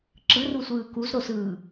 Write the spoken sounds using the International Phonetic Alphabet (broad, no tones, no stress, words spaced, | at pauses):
ǁɯrusʷɯː kuzɾosɯː